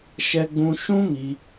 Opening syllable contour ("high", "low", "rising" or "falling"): high